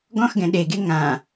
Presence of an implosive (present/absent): present